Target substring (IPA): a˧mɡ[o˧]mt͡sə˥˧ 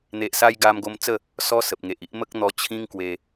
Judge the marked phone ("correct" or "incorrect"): correct